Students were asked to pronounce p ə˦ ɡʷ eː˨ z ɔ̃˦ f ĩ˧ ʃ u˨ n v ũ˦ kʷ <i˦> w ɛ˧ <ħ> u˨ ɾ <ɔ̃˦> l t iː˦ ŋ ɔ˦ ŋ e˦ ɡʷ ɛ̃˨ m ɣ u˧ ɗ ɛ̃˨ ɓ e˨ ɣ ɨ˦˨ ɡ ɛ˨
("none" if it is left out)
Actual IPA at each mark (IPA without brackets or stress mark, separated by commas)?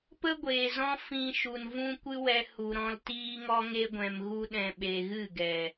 ɨ˦, h, ɔ̃˧